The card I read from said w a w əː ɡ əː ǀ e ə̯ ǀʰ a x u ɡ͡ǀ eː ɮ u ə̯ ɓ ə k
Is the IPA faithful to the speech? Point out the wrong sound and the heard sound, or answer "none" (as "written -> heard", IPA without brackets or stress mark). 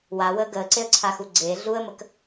ɓ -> m